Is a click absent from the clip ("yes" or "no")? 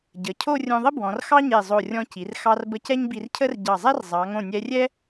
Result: yes